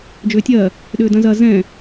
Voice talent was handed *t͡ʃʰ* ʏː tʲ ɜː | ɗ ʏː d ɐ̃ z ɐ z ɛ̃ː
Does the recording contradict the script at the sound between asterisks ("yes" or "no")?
yes